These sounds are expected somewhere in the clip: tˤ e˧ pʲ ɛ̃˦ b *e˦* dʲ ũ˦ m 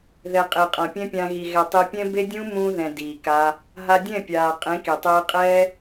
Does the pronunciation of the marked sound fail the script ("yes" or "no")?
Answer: no